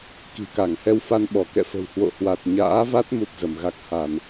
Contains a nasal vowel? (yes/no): no